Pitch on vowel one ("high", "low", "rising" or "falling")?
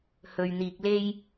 low